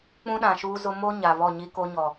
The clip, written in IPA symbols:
k͡p ũ˦ ɗ ã˨ ʃ uː˦ z ʊ˦ m o˦ ɲ a˨ β ɔ˦˨ ɲ i˦ k o˦ ɲ ɔ˨

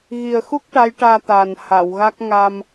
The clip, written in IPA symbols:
ɣ i˨˩ ə̯ x u˦˥ k̚ ʈ a˧˥ j ʈ aː˧ t̪ aː˨˩ n h a˨˩˨ w ɣ a˦˥ k̚ ŋ a˧ m

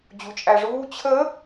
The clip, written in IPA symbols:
d͡ʑ u t͡ʃʼ æ ʐ uː t͡ɕʰ ə

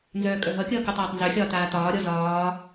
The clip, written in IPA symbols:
n z œː kʼ œ ɦ ʌ kʲ ʌː k u tˤ aː tˤ n z œ xʲ ɒː t aː t ɒː ɾʲ ɔ z ɒː

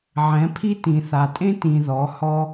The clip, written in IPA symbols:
ʕ ɛ̃˨˦ pʰ i˦ t ĩ˨ θ a˨ tʼ ẽ˦ t ĩ˧ ð ɔ˨˦ h ɔ˦

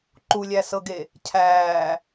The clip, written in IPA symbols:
ǃ u lʲ æ s ɤ ɡ e | cʰ æː

